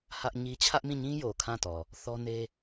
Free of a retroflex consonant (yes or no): yes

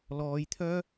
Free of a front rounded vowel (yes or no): no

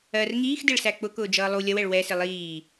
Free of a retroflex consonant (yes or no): no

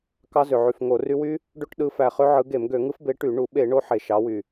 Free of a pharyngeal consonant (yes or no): no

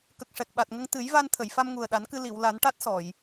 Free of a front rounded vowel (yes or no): yes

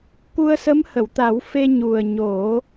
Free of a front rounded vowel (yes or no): yes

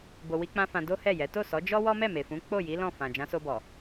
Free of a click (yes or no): yes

